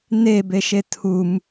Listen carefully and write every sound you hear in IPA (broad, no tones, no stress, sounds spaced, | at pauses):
n e b e ʃ e tʰ u m